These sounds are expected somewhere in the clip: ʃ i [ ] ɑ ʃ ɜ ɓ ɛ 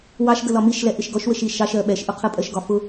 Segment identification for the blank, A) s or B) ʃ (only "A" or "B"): B